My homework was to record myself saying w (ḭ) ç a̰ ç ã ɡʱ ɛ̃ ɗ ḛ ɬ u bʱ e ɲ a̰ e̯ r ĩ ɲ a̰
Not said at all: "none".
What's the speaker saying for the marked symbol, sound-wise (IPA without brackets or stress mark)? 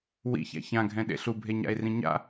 ḭ